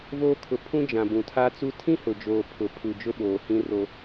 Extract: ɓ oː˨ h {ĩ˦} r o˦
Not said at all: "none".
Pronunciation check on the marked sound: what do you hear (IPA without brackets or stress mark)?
ĩ˦